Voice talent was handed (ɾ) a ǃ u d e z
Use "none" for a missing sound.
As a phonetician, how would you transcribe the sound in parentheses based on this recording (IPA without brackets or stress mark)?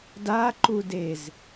d